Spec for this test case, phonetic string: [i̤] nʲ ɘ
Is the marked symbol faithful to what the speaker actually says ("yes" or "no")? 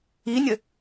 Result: no